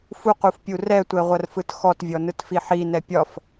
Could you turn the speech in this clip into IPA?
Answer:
f u q u f pʲ u r ɛ tʷ ɛ ʁʷ ɐ r f ɯ t x ɔ t vʲ ɔ n ɯ t f i ħ i n ɛ pʲ ɒ f

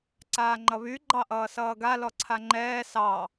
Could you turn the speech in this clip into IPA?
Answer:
ǀ aː ŋ͡ǃ ʌ β y ɡ͡ǃ ɑ ʔ ʌː s ʌː ɡ a l ɔ ǀʰ a ŋ͡ǃ ɛː s ɑ

